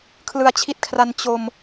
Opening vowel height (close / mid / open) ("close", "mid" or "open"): close